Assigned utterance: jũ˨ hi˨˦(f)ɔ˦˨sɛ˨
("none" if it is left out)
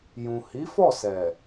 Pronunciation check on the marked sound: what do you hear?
f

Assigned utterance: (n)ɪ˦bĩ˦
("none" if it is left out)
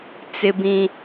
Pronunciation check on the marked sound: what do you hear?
t͡s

